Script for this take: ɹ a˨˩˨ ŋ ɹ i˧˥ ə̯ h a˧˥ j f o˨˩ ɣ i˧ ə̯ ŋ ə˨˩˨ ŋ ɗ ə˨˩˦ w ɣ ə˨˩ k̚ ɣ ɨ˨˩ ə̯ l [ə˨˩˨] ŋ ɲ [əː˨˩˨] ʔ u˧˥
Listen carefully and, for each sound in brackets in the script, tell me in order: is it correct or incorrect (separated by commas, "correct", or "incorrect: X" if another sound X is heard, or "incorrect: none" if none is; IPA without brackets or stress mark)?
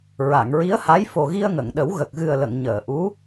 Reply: correct, correct